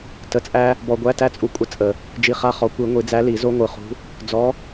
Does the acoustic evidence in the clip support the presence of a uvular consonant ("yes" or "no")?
yes